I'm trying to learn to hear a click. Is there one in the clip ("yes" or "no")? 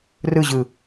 no